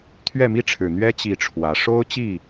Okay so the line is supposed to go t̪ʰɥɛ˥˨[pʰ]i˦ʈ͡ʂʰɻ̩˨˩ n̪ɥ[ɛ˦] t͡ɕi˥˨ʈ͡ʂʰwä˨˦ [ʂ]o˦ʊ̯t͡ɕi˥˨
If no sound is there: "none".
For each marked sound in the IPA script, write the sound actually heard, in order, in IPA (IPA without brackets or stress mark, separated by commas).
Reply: m, ɛ˦, ʂ